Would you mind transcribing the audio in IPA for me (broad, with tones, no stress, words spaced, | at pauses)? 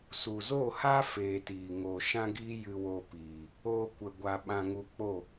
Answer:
su˨zo˦˨ha˦ feː˧tiː˨ ŋoː˨ʃã˦ɡiː˦ jɨ˧wo˧piː˨ | oː˦kʷə˧ɡʷa˧ ɓã˧ŋu˧ k͡po˦˨